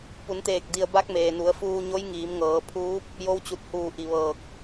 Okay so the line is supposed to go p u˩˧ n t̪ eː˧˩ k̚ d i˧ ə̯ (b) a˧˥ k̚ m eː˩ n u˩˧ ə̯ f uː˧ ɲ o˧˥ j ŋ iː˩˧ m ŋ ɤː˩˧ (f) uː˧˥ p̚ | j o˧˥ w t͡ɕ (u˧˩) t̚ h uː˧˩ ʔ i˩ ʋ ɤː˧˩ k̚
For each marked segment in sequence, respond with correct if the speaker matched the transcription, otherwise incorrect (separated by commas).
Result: correct, incorrect, correct